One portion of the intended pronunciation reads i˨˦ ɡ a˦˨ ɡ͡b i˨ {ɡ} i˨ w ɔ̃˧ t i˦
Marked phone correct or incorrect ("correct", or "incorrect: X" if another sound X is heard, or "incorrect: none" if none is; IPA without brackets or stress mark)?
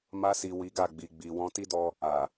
incorrect: ɡ͡b